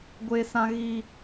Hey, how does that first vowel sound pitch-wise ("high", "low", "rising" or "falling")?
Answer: high